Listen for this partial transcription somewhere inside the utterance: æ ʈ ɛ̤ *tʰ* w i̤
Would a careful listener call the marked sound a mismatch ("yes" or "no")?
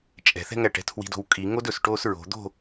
no